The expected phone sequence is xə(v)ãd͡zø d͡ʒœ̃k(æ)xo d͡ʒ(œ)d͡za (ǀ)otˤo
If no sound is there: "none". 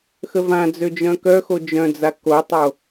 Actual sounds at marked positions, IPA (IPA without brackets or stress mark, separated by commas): v, œ, œ̃, k